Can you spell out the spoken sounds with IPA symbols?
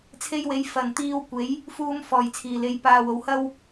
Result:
t͡sʰe˧jwe˨˧j fɐ˨nt̪iː˧wkʷe˨˥j | fuː˧m fɔː˨˩jt͡sʰiː˨˩le˨˧j paː˧wo˨˧w hɐ˥w

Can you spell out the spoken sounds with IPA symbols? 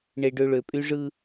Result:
ɳe˨ɖø˨ ɭø˨pʼy˦ʐɯ˦

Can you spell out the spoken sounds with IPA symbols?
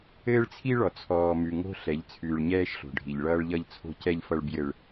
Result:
ɘː˦ɭt͡sʰi˦ɭɔ˨ t͡sʰɔː˨mʉ˨ ŋo̤˦ ɬɛ˨˦ʎt͡sʰʉː˨ɭɲɛː˦ʃ ɬo̤˨ɖʱi˨ʎ ɭʌː˦ɭʎʌ˦ʎt͡sʰo̤˦ cɛ˦ʎfʌ˦ɭ bjɘ˦ɭ

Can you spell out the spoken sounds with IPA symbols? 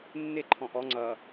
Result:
nːɪ ǃʰɔ̃ʔɔ ŋ͡ǀʌ

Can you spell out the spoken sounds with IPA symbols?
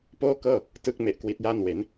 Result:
poː˥˩kɤː˥˩ | tɯ˦˥k̚me˨˩ʔ kwi˦˥t̚jaː˥˩n we˩˦n

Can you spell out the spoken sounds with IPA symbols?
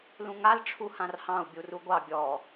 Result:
lũŋal ʈ͡ʂʰuhãrhɑ̃u̯ bʲuruɡʷɑ bʲɔ

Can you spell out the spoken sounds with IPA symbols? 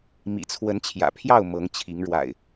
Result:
mḭ˨˩t͡sʰwə˨˦nt͡ɕʰjä̰˨˩pʰjɑ˥˨ʊ̯ mɤ˨˦ŋt͡ɕʰi˨˦ŋɻwa̰˨˩ɪ̯

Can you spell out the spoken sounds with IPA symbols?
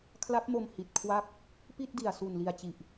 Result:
kʰla˦˥p̚mo˧m hi˨˩t̚kʰwa˥˩k̚ | pi˥˩t̚di˨˩a̯ su˨˩n li˨˩a̯t͡ɕi˨˩ʔ

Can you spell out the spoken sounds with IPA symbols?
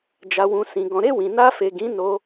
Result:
d͡ʒa˨wũ˨sĩ˨ ɡɔ̃˨ɾe˧ wĩ˨na˧fe˨ɡĩ˨˦ no˦

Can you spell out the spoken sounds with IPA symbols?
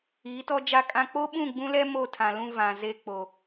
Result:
iː˨˦tɔ˦d͡ʒa˦kʼã˦ k͡po˦ɓũ˦˨ɡ͡bũ˦lɛ˦ mo˦˨tʰã˨ lũ˦ vã˨ ze˦k͡po˨

